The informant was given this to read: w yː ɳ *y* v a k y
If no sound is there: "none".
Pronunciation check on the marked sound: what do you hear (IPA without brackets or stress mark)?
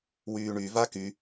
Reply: y